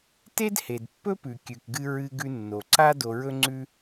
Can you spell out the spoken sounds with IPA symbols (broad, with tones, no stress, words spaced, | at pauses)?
te˥dhe˩d pːɵ˥pʉ˩ kʲʉ˩kɡɨ˧ ɹɨ˧ ɡʉ˧nːo˩ǀa˥ do˧ɹɵ˥ŋ͡ǀʉ˥